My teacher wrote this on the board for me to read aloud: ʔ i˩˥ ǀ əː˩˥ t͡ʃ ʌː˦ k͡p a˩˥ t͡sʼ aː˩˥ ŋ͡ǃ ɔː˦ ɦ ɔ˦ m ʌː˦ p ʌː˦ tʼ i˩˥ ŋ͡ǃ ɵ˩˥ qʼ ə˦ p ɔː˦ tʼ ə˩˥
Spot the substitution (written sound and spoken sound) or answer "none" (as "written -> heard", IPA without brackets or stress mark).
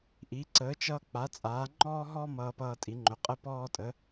none